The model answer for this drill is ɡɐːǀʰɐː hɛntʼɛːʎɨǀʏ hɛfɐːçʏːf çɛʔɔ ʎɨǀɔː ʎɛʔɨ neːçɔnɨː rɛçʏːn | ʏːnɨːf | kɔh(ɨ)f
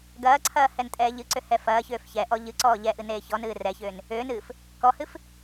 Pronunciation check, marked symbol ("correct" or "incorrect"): correct